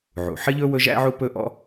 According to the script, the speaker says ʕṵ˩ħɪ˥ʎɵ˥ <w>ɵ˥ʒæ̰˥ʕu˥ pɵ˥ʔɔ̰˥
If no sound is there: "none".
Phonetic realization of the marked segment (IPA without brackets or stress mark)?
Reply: w